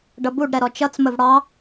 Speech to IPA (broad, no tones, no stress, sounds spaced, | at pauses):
ɖ ʌ b u ɖ ɾ ɛ ɾ ɔ t͡ʃ ʌ t͡s m ə v ɽ ɑ